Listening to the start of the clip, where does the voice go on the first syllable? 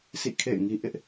falling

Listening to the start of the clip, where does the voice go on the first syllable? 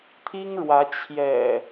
high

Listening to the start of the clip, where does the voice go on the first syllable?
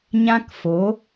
high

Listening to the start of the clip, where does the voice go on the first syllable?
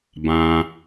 low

